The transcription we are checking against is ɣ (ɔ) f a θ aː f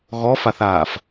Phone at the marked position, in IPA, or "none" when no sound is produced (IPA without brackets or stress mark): ɔ